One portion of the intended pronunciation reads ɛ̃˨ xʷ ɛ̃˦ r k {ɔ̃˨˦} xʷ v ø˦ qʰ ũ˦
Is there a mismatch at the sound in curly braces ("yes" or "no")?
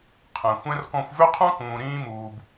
yes